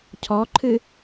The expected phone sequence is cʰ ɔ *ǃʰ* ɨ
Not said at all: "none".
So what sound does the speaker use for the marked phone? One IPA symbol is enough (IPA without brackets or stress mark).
ǃʰ